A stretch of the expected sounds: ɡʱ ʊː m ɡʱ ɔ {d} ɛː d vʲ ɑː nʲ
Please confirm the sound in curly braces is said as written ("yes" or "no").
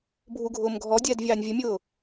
no